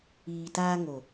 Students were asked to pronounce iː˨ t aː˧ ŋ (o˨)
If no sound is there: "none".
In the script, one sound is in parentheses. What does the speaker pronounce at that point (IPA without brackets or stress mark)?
o˨